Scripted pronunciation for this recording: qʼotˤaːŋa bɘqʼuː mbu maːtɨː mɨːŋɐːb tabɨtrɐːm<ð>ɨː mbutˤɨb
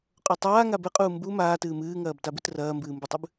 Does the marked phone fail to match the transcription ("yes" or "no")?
yes